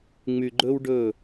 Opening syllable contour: low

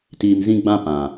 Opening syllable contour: low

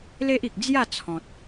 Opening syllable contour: high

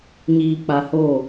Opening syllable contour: low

